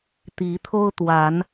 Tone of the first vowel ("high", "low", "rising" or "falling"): rising